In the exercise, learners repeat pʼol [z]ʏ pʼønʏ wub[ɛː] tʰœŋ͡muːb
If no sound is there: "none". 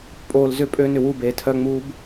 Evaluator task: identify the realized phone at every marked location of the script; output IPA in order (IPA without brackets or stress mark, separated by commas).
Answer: z, eː